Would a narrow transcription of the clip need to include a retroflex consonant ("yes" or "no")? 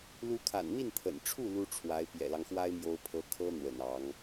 yes